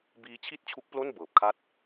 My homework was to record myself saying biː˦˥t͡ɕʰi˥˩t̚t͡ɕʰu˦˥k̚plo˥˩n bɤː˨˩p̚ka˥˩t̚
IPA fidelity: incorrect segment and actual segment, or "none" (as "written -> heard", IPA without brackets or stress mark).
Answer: k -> kʰ